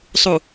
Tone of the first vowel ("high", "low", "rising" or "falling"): low